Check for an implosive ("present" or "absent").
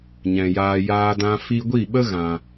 present